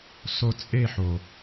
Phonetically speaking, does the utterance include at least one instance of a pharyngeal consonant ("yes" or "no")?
yes